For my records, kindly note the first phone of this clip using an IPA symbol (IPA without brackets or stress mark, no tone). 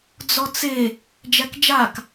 d͡z